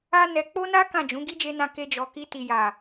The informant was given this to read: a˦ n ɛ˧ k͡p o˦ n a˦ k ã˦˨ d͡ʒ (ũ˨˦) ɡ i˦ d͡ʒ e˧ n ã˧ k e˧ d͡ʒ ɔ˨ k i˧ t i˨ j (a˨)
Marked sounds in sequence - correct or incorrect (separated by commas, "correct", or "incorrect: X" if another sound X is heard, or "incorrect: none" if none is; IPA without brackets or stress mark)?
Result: correct, correct